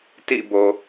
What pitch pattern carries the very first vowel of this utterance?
falling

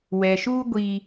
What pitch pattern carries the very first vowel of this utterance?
low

